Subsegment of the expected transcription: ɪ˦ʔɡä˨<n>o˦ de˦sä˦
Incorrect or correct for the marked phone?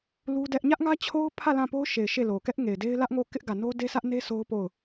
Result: correct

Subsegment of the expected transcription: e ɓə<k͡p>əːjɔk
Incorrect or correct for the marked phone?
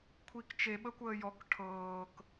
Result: incorrect: kʷ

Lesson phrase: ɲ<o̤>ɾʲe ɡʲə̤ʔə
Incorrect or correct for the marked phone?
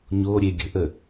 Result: incorrect: o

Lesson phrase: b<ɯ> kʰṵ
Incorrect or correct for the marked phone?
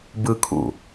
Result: correct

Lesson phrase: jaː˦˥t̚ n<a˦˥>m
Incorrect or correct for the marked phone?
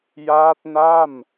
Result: incorrect: a˥˩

